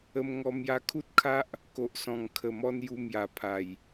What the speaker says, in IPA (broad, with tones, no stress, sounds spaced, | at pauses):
ə˧ m ŋ ɔ˧ m j a˧ kʰ u˦ t̚ kʰ a˦ ʔ | k o˨ ʔ s ɔ̃˨˩ ŋ kʰ ə˨˩ m ɔ˧ n j u˧ m j a˨˩ pʰ a˨˩ j